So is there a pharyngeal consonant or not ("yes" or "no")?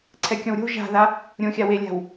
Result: no